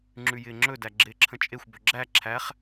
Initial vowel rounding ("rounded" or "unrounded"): rounded